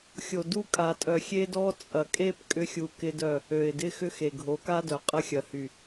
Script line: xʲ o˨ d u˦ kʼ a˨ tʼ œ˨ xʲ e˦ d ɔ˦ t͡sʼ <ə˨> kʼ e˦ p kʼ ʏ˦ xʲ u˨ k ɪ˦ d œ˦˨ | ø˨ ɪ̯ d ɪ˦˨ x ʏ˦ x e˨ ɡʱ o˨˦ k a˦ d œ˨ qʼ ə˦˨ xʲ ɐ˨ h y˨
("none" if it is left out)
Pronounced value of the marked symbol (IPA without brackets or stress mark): ɐ˨